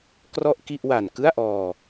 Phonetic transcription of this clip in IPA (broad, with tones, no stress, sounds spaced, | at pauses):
k r ɔ˥˩ ʔ k i˥˩ ʔ w a˨˩ n k ɯ˥˩ a̯ ʔ ɔː˧